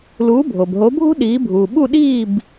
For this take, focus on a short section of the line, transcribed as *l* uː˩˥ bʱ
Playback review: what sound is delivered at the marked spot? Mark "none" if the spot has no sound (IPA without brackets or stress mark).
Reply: l